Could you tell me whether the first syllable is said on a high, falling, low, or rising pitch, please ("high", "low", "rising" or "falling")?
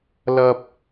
high